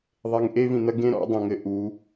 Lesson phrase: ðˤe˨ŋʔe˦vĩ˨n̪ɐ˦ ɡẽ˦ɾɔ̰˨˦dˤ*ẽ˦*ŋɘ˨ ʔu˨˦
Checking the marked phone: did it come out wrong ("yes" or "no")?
yes